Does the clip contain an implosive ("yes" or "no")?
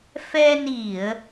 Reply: no